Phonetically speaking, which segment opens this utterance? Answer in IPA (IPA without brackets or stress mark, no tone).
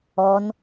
ɔ